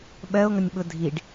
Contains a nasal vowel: no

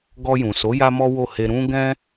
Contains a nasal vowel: yes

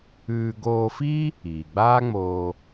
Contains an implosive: no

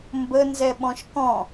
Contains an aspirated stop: no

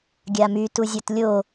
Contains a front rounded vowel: yes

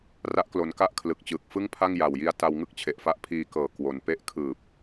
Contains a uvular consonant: no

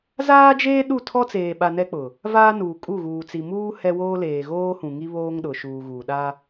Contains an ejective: yes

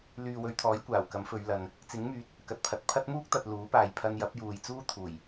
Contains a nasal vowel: no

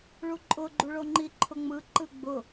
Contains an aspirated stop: yes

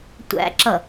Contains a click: yes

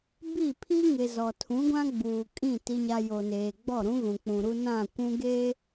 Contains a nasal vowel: yes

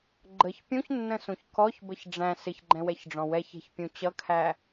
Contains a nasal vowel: yes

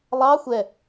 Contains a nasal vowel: no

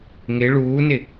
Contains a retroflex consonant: yes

